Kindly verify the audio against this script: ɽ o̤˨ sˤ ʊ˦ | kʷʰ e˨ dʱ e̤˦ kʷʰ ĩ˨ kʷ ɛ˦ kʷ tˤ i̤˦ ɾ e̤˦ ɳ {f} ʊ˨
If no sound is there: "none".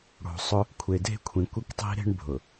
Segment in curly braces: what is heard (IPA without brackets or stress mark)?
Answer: bʱ